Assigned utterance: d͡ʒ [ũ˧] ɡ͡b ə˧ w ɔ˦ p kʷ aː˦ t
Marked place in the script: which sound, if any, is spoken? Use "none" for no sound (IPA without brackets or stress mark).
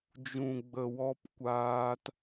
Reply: ũ˧